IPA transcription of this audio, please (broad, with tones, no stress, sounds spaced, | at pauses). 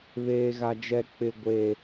β eː˦ ɣ a˦ d͡ʒ ɛ˦ k͡p ɪ˦ ɡʷ eː˦